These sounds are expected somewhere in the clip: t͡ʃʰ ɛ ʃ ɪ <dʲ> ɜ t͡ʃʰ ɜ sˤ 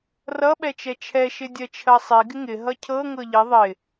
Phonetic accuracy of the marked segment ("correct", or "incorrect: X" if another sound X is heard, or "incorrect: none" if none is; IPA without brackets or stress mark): correct